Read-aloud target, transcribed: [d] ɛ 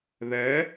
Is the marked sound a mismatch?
yes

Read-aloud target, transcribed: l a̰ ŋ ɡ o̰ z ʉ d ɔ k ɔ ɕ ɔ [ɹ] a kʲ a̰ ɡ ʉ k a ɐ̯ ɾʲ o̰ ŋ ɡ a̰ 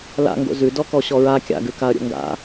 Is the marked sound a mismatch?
no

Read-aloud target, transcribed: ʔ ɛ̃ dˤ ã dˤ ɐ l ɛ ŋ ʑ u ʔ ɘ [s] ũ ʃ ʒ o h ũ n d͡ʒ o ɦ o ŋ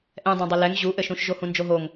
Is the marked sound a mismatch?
yes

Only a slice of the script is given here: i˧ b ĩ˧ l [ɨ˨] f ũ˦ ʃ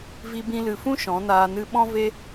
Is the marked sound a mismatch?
no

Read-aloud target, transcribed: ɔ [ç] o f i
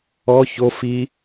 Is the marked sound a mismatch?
no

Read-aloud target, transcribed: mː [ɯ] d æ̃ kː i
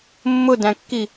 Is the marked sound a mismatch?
yes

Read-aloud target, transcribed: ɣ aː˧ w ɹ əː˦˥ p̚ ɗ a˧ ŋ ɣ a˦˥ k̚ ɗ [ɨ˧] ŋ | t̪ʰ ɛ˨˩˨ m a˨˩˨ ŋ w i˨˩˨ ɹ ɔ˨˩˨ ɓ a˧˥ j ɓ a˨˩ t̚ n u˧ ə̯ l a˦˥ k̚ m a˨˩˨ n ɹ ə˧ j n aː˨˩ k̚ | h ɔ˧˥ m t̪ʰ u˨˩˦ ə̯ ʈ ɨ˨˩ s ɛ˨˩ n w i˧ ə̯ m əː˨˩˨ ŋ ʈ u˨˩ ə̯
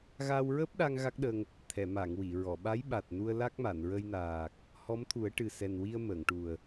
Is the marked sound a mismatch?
yes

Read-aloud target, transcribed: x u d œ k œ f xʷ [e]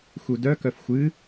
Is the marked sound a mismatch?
yes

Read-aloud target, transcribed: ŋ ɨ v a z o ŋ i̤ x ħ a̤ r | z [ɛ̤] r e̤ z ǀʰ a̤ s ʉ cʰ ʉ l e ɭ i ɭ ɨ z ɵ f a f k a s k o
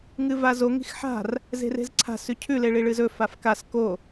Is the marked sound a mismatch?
yes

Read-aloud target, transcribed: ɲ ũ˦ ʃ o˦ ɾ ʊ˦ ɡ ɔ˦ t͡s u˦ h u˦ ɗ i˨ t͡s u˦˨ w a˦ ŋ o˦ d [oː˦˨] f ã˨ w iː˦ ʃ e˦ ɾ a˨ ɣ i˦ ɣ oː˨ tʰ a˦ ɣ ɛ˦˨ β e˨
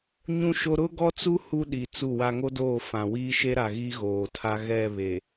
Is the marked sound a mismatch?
no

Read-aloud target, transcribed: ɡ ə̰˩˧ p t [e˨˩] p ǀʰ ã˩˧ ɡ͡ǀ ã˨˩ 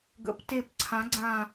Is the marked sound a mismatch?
no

